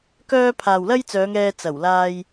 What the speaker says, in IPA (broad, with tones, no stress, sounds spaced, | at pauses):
k œː˥ pʰ aː˨ w l ɐ˥ j t͡s œː˨˧ ŋ ɛː˧ t͡s ɐ˨˩ w l aː˧ j